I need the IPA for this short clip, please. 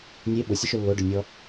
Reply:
nʲ e ɓ ʊ sʲ ʊ ʃ ɵ lː o ɖ ɵ nʲ ɔ

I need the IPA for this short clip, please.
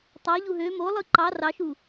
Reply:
tˤ ɑ ʎ u ɦ ø m o lˠ ɯ ǃ ɑ r ɑ ʃ u

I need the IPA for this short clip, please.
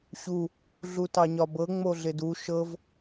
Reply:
ɕ u | ɮ u t ɑ ɲ ɒ b ɤ ŋ͡m o ɮ ɪ d u ʃ ɤ v

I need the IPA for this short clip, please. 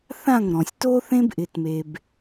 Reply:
θ ã˦˨ ŋ ɾ ɔ̃˨ sʲ t o˦ θ ẽ˦ b ʔ ɪ˦ t m e˦ b

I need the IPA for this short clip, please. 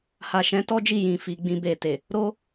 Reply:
h a˨ ʃ ɛ̃˨˦ t ɔ˦ d͡ʒ i˦˨ j ĩ˧ f i˧ ɡ͡b ĩ˧ b e˨ t e˨ | ɾ o˦

